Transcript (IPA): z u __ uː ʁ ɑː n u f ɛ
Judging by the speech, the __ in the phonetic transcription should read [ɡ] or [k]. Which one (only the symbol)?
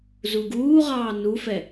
ɡ